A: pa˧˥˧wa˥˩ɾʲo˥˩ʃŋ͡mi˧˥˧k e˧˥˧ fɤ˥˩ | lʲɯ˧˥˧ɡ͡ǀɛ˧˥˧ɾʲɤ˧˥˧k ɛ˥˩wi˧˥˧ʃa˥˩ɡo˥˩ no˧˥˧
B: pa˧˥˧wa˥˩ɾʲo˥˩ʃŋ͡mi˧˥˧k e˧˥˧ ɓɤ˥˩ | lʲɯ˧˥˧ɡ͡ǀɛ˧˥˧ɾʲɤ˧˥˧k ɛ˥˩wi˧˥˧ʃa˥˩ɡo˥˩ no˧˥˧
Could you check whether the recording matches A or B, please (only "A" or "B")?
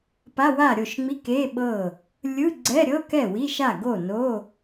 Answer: B